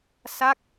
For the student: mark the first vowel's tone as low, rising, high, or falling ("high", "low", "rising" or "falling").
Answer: falling